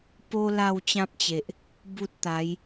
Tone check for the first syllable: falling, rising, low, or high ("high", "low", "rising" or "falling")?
high